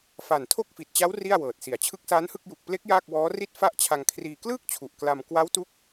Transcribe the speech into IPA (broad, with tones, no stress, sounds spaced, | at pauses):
f a˨˩ n tʰ o˥˩ k̚ f i˨˩ t̚ t͡ɕ a˦˥ w r i˥˩ a̯ w ɤː˨˩ t̚ s i˨˩ a̯ t͡ɕʰ ɯ˦˥ k̚ s aː˦˥ n h ɯ˥˩ k̚ j u˨˩ k̚ p l e˦˥ k̚ j aː˥˩ k̚ w ɔː˦˥ r i˥˩ t̚ f a˥˩ ʔ t͡ɕʰ a˧ ŋ kʰ r iː˧ k l ɯː˥˩ k̚ t͡ɕʰ u˨˩ ʔ k l a˧ m k w a˦˥ w t u˦˥ k̚